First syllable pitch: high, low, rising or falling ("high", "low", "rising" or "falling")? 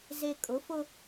low